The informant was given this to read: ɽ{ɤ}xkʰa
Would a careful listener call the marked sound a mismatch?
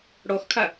yes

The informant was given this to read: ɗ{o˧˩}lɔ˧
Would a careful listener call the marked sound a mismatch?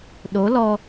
yes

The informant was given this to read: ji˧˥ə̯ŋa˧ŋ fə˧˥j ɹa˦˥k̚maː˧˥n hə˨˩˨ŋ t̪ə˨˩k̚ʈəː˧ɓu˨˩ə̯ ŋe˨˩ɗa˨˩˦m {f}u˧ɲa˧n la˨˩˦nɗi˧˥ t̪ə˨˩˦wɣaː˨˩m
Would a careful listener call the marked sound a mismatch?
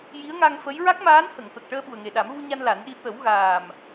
yes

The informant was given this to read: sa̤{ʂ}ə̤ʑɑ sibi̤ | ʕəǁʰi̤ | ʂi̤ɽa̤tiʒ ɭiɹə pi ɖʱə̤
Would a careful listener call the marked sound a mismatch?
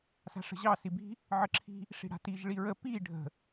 no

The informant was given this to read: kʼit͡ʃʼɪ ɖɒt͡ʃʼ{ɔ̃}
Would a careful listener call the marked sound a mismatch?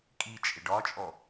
yes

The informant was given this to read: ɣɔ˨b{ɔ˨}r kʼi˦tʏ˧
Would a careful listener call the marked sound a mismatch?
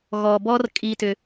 yes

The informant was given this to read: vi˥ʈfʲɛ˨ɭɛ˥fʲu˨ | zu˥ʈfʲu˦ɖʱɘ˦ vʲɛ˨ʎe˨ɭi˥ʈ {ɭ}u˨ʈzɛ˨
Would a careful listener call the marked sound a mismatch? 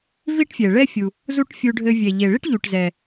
yes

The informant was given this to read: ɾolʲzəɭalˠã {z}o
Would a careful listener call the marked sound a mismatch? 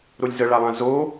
no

